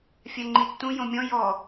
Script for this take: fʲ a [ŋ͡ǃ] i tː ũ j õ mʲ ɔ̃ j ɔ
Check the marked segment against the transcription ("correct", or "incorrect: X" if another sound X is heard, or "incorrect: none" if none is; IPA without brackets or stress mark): correct